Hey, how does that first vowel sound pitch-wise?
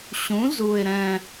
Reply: rising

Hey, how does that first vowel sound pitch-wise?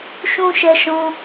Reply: high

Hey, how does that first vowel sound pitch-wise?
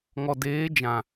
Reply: low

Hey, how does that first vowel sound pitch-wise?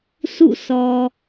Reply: falling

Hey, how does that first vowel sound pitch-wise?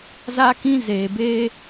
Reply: high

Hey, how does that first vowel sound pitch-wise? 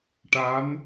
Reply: rising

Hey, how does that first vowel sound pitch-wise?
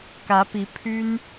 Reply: rising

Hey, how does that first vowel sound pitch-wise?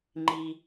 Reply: low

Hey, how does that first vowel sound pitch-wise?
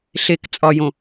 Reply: low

